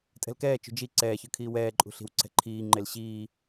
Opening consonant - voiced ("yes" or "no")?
no